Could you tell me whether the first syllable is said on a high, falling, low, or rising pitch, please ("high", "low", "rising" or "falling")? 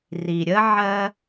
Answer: low